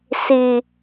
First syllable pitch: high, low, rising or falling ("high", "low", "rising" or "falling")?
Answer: low